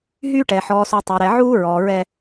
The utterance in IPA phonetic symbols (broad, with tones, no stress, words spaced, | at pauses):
ɦyː˦ʈɛ˨ ħɔː˨su˨ tˤæ˨ɾɛ˨ʕuː˦ɹɔː˨ ɹɛ˦